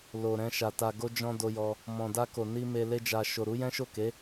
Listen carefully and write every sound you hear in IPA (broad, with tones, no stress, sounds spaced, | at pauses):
l o˨ ɾ ɛ̃˧ ʃ a˨ t a˨ ɡ o˧ d͡ʒ ɔ̃˦ d o˧ j ɔ˧ | m ɔ̃˨ d a˧ k o˨ n i˧ m e˧ l e˦ d͡ʒ a˧ ʃ o˨ ɾ u˨˦ j ɛ̃˦ ʃ o˦˨ k e˨˦